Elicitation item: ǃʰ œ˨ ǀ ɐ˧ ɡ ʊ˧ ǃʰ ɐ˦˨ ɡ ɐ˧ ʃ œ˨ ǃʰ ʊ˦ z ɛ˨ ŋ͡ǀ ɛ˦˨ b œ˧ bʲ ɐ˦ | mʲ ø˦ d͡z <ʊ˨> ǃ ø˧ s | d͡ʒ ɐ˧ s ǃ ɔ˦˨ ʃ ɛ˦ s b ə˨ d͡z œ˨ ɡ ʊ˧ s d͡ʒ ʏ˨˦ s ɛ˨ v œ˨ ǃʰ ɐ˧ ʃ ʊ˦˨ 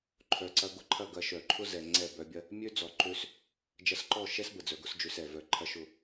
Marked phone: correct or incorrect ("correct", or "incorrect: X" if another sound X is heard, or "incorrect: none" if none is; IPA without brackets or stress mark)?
incorrect: ɔ˨